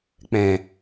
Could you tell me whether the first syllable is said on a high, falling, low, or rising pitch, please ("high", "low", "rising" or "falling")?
low